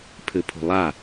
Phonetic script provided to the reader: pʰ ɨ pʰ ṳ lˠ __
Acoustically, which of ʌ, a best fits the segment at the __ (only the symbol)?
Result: a